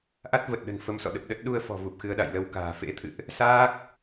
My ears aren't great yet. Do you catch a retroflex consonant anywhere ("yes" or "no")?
no